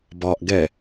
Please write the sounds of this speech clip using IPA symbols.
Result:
b ɒ ʔ ɡ ɛ

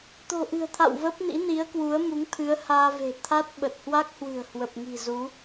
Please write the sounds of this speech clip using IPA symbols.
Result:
t̪ o̤˨˩ ʔ ɨ̤˨˩ ə̯ t̪ʰ a̰˧˨ w v ə˦˥ p̚ n ḭ˧˥ n i˨˦ ə̯ k w u˨˦ ə̯ m u˨˦ ŋ t̪ʰ ɨ˨˦ ə̯ h aː˧ v e̤˨˩ t̪ʰ a˦˥ t̚ ɓ ə˨˩ t̚ h w a˦˥ k̚ h w ɨ̤˨˩ ə̯ h w ə˨˩ p̚ ŋ i̤˨˩ z u˨˦

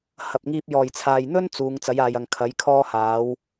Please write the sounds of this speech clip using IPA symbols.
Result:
h ɐ˨ p̚ ŋ iː˧ p̚ j ɔː˨˩ j t͡sʰ aː˨ j n̪ ɵ˥ n t͡s uː˨˧ ŋ t͡s ɐ˨˥ j aː˨ j ɐ˨ ŋ kʰ ɐ˨˥ j kʰ ɔː˥ h aː˨˥ w

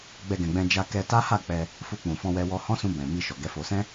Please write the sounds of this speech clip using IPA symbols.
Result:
ɡ͡b ɛ˧ ɡ ɛ̃˨ ɡ͡b ɛ̃˧ d͡ʒ a˧ k ɛ˧ t a˦ h a˦˨ k͡p ɛ˧ | f u˧ k͡p ũ˨ f ɔ̃˧ w ɛ˧ w ɔ˧ h ɔ̃˦ s ũ˧ b ɛ̃˨ m i˧ ʃ ɔ˨ ɡ ɛ˨˦ f o˧ s ɛ̃˦

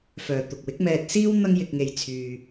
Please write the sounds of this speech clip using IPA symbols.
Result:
f œː˨ t̪ ʊ˨ k̚ w ɪ˨˥ k̚ m ɛː˧ t̚ s iː˥ w n̪ ɐ˥ ŋ j ɪ˧ k̚ ŋ e˧ j t͡sʰ yː˧

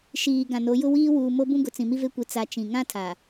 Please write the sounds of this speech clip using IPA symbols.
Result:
ʃ iː˨ ɡ ã˨ n o˨˦ j ʊ˦ w iː˦ w uː˨ m o˦ b ũ˦ ɡ ʊ˨ t͡s ĩ˨ m i˦ v e˦ kʷ i˨˦ t͡s a˨ t͡ʃ ĩ˨ ŋ ã˦ tʰ a˨

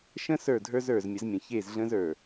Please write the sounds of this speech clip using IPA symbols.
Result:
ʃ ə̃˦ s ə˞˦˨ dʱ ə˞˦ z ə˞˨ z mʲ ə˨˦ z mʲ ə̃˨ ç e˦˨ z ɮ ə̃˦ z ə˞˨

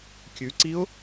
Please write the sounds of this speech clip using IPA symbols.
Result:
kʲ ʉ ǀ i ʊ̯

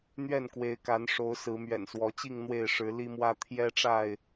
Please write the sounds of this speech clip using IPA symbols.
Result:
n̪ ɥ ɛ˥˨ n k w e˨˦ ɪ̯ k a˨˦ n ʂ o˨˦ ʊ̯ s ɹ̩˨˦ m ɥ ɛ̰˨˩ n s w ɔ˨˦ t͡ɕ i˥˨ ŋ n̪ w e˥˨ ɪ̯ ʂ ɻ̩˨˦ l i˦ m w ä˦ t̪ʰ j ɛ˦ ʈ͡ʂ a˥˨ ɪ̯

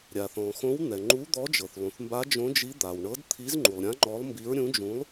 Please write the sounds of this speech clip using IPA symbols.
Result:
ɾʲ a˩ θ ɔ̃˩ x õ˨˥ w n̪ ɛ˩ ŋ͡ǃ u˨˥ d̪ ɔ˨˥ d͡ʒ ɤ˩ θ lˠ ũ˩ θ m b a˨˥ d͡ʒ õ˨˥ d͡ʒ i˨˥ d̪ a˩ w ɳ ɤ˨˥ d t̪ʰ i˨˥ z ŋ͡ǃ u˩ lˠ ɾʲ ã˨˥ ŋ͡ǃ ɔ˨˥ lˠ m b i˨˥ ɹ ɾʲ ũ˨˥ d͡ʒ ũ˨˥ lˠ

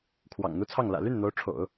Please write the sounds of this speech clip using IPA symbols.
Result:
kʰ w ɑ̰˨˩ ŋ n̪ u˥ t͡sʰ ɑ˥˩ ŋ l ä̰˨˩ l y˥˩ n n̪ o˧˥ ʊ̯ ʈ͡ʂʰ o̰˨˩˦ ʊ̯

